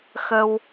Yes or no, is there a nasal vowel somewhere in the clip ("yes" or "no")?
no